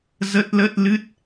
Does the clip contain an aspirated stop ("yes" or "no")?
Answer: no